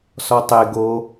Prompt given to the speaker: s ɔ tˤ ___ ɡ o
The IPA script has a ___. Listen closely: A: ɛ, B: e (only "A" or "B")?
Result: B